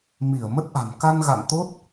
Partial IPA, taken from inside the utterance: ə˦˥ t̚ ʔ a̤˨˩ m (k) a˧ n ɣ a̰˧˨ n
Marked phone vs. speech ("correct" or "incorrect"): correct